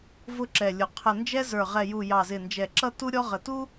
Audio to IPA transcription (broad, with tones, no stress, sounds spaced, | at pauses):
v ʊ˦ ǁ ɛ˨˩ lʲ ʊ˨˩ qʰ ə˨˩ n d͡ʒ ɛ˦ z ə˞˨˩ ʁ ɛ˨˩ j u˨˩ j ɑ˨˩ z ɪ˨˩ n d͡ʒ ɛ˨˩ ǁ ʌ˦ t u˦ ɾʲ ɔ˦ ʁ ə˨˩ t u˦